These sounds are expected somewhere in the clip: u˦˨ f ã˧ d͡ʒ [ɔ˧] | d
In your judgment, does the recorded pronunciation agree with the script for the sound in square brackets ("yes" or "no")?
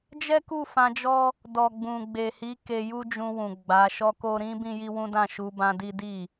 no